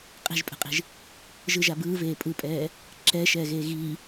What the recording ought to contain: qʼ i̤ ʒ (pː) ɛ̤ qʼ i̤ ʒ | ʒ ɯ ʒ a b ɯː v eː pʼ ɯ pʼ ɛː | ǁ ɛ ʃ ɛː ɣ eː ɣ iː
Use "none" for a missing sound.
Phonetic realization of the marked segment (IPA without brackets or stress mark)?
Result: pʼ